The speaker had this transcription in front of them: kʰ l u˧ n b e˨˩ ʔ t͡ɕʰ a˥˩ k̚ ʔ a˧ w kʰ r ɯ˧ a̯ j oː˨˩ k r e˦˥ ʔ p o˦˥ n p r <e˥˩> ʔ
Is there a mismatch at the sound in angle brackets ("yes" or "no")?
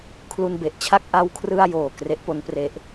yes